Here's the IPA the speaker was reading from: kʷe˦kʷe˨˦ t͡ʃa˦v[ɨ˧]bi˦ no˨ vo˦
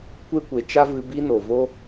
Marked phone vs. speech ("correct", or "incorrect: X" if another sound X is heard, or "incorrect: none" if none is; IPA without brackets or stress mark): correct